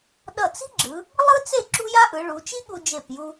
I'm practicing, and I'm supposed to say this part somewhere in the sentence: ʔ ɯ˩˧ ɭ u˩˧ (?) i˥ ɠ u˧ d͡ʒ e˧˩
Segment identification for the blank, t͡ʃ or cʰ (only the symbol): t͡ʃ